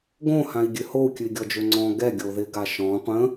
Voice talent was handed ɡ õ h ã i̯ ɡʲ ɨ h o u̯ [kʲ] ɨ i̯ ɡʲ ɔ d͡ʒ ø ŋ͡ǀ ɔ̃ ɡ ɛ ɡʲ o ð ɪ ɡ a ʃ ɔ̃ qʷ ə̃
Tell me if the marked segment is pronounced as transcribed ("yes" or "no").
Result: yes